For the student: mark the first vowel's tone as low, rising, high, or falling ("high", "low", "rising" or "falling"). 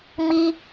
high